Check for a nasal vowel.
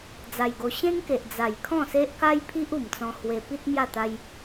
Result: present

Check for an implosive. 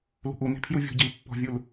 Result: absent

